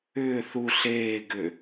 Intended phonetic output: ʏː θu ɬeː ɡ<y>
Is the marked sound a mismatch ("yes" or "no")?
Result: yes